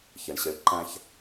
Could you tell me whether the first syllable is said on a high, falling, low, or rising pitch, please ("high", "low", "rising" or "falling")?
low